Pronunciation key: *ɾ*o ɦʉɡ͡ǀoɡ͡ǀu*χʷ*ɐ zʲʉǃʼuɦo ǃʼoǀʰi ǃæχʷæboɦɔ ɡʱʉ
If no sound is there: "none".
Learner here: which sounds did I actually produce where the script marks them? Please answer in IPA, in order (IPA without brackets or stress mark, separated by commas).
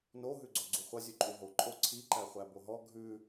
n, χʷ